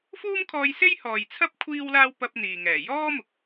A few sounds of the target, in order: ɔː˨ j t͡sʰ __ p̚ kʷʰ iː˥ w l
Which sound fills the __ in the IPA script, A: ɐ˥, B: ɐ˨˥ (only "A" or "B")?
A